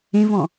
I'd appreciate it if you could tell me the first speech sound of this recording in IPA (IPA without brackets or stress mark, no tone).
ẽ